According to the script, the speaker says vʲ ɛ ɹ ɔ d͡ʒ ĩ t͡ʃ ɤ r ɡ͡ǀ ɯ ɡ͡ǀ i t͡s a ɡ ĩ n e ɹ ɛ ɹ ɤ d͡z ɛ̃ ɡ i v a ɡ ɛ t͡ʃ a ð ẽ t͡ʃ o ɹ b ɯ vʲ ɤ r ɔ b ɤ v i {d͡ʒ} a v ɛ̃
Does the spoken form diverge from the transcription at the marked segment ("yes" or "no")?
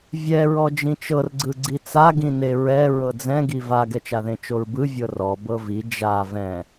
no